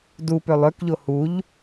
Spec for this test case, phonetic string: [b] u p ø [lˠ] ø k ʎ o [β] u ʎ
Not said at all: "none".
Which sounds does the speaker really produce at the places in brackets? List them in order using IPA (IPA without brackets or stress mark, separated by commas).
d, lˠ, h